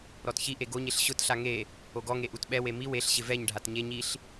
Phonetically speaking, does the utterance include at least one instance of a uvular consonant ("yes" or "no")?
no